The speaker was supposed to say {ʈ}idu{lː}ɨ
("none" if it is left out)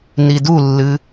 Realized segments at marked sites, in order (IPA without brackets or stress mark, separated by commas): n, lː